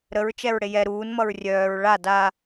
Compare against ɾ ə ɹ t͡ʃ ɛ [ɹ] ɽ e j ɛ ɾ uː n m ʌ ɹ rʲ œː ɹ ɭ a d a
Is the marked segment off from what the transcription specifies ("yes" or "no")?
no